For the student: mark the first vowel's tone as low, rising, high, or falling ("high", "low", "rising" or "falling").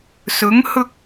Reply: rising